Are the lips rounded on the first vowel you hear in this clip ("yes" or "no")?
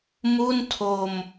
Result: yes